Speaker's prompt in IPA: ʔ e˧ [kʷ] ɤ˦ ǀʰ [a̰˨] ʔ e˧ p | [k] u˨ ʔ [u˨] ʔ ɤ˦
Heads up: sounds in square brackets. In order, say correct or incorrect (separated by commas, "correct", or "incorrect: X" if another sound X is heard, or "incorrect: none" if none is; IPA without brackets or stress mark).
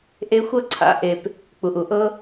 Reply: incorrect: xʷ, incorrect: a̰˨˦, incorrect: k͡p, correct